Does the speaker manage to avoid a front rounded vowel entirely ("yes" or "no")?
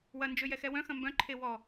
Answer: no